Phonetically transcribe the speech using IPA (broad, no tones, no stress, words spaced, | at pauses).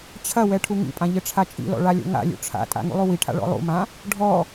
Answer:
t͡ɕʰɐwɛ ʈʰuŋḭpʼã ʎɘʈ͡ʂʰat͡ʃʼḭlɔ̰ ɭalʲo̰ŋa̰lʲṵ ʈ͡ʂʰa̰tʼa̰ ŋṵlˠuwiʈʰa̰ ɭɔ̰lˠṵmã | ɖʱɔ